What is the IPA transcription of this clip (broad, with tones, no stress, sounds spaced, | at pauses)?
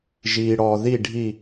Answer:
ʒ iː˨ ɽ ɔː˨ ð i˦˨ ɖʱ i˦˨